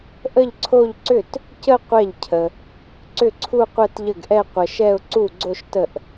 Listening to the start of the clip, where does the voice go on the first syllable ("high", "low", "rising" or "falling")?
falling